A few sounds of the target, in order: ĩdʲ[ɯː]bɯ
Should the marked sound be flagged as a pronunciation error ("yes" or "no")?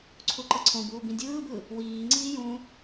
no